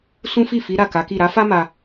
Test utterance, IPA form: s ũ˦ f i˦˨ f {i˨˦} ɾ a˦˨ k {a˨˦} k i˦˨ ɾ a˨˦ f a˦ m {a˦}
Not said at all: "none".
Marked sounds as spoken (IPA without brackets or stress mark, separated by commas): i˨˦, a˨˦, a˧